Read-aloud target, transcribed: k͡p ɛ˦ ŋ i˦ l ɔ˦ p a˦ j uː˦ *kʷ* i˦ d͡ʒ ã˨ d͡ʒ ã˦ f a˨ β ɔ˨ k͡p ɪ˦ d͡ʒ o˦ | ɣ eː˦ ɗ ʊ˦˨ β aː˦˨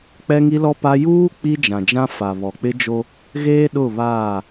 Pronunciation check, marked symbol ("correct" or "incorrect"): incorrect